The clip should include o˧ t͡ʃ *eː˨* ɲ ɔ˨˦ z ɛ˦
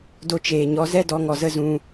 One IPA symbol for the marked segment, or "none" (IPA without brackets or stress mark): eː˨